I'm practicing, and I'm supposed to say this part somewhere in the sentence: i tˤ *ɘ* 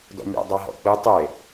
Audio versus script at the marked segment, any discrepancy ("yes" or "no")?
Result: yes